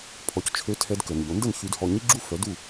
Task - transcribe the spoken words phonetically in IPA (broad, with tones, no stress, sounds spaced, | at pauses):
pʰ ɔ˩˥ c t͡ʃʰ ø˧ tʰ ɛ˧ d k ə˩ n ʎ o˩˥ n d ə˥˩ n ç y˧ d h ɔ˧ ɲ i˥ ɡ͡ǁ u˥ f œ˩˥ d u˥˩